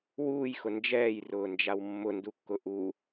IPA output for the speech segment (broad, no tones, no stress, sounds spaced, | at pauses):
w uː j x ʊ n d͡ʒ ɛː j r ʊː n d͡ʒ a w mː ʊ n d u kː ʊ ʔ u